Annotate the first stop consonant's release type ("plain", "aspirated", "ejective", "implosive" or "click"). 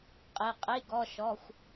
ejective